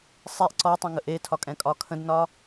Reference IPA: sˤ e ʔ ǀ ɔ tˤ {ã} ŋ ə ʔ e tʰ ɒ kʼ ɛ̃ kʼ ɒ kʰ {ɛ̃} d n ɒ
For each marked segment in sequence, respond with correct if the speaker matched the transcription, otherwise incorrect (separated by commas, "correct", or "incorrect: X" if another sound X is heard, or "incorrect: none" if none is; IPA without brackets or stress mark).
incorrect: ə̃, incorrect: ə̃